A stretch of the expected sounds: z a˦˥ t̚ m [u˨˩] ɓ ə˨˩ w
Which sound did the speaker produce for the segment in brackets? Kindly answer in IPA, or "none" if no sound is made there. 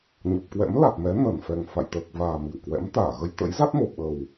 o˨˩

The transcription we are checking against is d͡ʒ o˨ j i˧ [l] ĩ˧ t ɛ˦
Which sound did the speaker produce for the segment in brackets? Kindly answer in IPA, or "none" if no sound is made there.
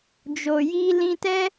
l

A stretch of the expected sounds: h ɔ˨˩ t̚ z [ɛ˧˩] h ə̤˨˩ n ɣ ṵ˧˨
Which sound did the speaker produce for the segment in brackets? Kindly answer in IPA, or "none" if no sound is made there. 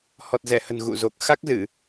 ɛ˧˩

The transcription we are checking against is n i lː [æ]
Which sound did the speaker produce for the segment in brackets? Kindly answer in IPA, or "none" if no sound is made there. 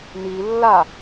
a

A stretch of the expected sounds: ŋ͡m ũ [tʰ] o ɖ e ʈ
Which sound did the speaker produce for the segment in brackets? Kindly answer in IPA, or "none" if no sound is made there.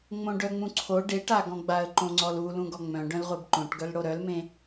ǀʰ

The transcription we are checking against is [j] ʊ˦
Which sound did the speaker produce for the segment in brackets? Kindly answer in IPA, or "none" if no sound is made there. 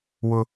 w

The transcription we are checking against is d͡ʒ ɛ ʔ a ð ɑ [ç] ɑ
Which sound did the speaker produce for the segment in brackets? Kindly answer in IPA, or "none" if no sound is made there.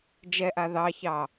ç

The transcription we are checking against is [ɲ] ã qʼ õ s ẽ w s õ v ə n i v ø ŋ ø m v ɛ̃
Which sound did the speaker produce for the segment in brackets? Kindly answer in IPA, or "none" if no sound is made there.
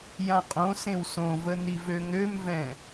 j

